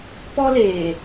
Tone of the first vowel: high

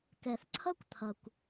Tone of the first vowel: low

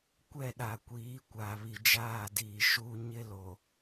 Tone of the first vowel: falling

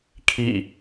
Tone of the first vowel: falling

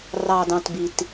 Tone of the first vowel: low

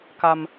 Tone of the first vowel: high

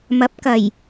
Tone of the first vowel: rising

